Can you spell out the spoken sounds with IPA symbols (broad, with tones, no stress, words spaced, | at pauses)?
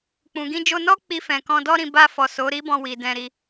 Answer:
k͡pũ˨ɡĩ˧ d͡ʒo˧nɔ˦ k͡pi˧fɛ̃˨ kɔ̃˧dɔ˦ɾĩ˧ ba˧fɔ˨ so˨˦ɾi˦ bɔ̃˧wi˨ dɛ̃˧ɾi˦